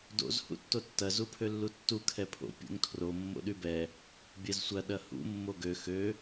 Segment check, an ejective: absent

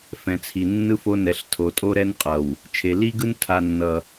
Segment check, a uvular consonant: present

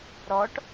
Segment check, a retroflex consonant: present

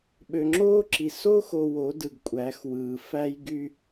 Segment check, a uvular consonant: absent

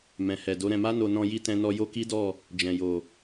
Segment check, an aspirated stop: absent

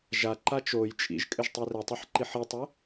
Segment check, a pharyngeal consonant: present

